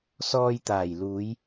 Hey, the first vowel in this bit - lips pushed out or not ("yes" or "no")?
yes